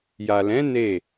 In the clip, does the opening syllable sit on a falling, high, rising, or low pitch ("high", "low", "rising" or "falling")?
low